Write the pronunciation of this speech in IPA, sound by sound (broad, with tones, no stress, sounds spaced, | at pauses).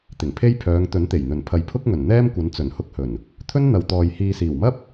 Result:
t̪ ɪ˨˩ ŋ pʰ e˥ j pʰ œː˨˧ ŋ t̪ ɵ˨˥ n t̪ e˨˩ j n̪ ɵ˨˩ n pʰ ɐ˨ j pʰ ʊ˥ k̚ ŋ ɵ˨˩ n n̪ ɛː˥ m kʷ ɐ˨˥ n t͡s ɵ˨˩ n h ʊ˧ k̚ h ɵ˨˩ n | t̪ʰ ɵ˥ n n̪ ɐ˨ w t̪ ɔː˨ j h iː˨ s iː˨˩ w m ɐ˥ p̚